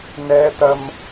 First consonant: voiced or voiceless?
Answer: voiced